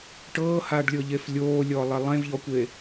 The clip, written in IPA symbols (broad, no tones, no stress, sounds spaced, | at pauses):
ʈ ɤː h aː ɖ lʲ ɤ ʎ e f lʲ oː lʲ ɔː lˠ e lˠ ẽ v ʎ ɔ kʷ e